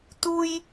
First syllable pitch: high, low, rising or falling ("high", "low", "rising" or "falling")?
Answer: high